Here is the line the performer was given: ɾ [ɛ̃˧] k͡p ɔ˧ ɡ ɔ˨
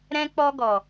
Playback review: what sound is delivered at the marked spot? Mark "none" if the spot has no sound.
ɛ̃˧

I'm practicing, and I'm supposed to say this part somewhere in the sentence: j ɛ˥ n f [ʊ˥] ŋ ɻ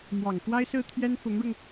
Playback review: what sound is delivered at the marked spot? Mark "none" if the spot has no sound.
ʊ˧˥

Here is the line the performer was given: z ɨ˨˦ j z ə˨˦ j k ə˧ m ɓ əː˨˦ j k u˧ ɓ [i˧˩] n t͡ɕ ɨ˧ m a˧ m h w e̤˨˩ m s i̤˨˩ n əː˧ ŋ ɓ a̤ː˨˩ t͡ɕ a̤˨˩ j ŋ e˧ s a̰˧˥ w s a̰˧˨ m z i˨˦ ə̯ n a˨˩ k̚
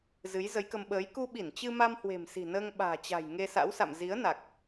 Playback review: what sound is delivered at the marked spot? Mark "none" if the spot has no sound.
i˧˩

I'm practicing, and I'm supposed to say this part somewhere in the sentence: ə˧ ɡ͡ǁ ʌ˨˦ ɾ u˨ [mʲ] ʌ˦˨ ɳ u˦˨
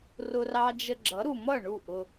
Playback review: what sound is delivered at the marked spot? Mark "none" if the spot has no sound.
m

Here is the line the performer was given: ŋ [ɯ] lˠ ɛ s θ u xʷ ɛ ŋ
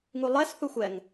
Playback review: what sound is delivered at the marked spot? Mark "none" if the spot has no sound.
u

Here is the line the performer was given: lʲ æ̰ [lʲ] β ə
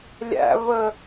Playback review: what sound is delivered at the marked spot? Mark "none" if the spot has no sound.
none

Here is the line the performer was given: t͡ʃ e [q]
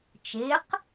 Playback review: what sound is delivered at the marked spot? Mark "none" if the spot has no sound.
q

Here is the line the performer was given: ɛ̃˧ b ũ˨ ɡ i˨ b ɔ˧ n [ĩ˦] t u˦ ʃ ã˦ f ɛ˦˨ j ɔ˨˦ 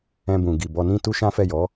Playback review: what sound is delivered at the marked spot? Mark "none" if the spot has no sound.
ĩ˦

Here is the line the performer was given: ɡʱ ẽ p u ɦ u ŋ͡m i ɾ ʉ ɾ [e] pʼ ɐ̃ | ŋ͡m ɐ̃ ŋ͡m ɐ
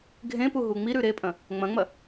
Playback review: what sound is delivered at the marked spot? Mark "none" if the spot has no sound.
e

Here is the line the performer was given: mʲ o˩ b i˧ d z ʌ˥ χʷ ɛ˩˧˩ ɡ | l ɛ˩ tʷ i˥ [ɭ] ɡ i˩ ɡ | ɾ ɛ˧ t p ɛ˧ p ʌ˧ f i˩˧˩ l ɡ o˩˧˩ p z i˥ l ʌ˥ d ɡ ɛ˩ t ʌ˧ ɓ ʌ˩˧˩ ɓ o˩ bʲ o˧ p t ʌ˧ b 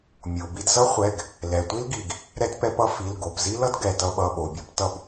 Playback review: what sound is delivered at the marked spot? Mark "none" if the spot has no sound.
l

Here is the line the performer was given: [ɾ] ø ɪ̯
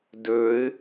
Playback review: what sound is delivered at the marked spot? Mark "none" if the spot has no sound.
d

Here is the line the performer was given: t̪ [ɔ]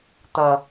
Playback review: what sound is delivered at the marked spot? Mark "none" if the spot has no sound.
ʌ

